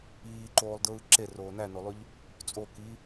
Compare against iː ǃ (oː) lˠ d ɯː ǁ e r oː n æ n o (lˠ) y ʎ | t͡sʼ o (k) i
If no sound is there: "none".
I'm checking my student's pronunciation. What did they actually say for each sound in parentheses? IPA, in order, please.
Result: oː, lˠ, k

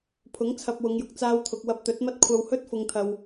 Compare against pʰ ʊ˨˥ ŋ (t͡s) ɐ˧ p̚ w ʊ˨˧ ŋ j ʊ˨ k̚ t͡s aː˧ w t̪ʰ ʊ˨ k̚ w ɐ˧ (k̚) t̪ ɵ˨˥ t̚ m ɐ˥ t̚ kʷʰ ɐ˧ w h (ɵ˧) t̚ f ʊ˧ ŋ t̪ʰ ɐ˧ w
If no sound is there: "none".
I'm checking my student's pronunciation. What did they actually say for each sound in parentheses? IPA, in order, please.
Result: t͡sʰ, p̚, ɵ˥

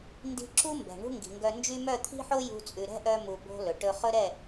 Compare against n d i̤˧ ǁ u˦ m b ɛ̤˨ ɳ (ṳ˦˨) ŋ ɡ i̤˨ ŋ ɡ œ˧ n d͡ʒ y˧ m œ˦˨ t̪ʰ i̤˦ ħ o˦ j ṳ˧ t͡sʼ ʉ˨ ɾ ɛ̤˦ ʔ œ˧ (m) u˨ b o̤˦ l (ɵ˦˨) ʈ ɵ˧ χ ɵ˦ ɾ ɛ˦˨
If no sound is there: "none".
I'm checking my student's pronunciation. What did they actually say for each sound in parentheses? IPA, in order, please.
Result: ṳ˦, m, ɵ˨

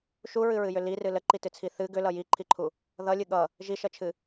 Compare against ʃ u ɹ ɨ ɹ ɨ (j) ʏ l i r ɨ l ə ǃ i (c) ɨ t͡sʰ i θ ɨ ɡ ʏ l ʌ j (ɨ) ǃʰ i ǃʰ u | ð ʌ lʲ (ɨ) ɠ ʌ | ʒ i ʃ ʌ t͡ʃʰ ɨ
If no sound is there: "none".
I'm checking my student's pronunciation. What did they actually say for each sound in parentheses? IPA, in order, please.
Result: j, t, i, ɨ

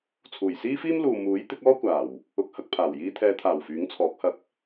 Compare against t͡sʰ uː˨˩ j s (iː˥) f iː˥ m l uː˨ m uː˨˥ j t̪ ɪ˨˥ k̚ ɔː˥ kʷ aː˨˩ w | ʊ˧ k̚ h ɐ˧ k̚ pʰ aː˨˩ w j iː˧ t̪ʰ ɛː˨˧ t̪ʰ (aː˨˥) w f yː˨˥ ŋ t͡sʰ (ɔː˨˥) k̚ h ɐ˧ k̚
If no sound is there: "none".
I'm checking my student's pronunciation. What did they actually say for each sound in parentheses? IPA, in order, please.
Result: iː˥, aː˨˩, ɔː˨˥

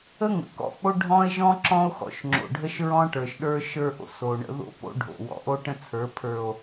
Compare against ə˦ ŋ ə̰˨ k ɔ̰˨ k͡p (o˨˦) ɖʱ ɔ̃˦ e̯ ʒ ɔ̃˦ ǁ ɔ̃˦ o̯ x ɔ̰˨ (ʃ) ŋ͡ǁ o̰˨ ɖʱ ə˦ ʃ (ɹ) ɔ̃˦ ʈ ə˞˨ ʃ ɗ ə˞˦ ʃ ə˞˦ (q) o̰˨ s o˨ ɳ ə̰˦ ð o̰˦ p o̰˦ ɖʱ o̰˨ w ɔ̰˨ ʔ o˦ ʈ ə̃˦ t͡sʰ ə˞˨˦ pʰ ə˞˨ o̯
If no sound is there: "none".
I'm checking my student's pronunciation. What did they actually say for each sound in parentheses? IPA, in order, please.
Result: o˦, ʃ, ɹ, ʔ

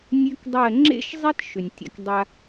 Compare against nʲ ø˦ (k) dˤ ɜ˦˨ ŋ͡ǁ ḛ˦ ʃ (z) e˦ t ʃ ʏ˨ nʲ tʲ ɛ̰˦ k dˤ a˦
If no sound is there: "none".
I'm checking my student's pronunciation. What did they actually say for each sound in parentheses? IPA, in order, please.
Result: k, zˤ

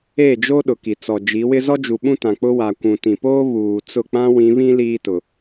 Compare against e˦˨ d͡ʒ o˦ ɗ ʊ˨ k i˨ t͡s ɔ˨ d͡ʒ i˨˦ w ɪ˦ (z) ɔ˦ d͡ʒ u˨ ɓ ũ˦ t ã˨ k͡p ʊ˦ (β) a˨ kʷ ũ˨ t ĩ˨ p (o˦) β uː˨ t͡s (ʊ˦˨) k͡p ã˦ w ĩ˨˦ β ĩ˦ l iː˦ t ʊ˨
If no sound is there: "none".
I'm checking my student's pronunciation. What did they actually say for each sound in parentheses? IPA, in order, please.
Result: z, w, oː˦, ʊ˦˨

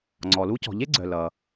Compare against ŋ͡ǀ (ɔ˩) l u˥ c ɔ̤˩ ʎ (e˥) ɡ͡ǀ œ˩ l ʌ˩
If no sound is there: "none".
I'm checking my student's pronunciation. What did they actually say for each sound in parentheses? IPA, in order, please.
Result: ɔ˩, e˥

